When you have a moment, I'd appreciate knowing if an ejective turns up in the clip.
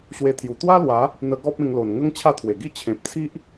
no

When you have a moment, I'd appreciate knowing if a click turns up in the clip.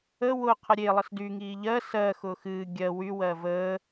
no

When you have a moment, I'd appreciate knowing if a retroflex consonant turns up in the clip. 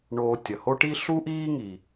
yes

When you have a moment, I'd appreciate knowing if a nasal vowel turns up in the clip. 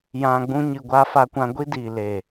yes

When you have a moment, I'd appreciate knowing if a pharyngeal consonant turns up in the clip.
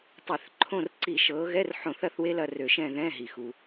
yes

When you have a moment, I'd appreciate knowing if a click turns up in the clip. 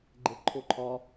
yes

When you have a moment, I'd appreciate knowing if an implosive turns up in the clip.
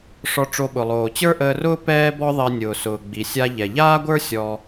yes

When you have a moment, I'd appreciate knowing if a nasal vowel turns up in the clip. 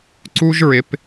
no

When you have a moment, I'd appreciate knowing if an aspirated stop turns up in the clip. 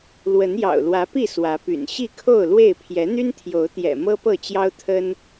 yes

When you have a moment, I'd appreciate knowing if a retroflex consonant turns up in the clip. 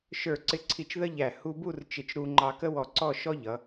no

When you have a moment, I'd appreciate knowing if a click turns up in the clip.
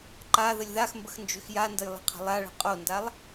yes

